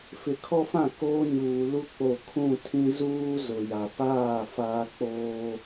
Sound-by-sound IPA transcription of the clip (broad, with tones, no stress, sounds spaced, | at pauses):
f ɪ˨ kʰ ɔ˦ f ã˦˨ k oː˦ ɲ uː˨ l u˦ k͡p o˦˨ kʰ ũ˦˨ tʰ ĩ˦ z uː˦ z ʊ˨ j a˨ p aː˦˨ f aː˦ k͡p oː˦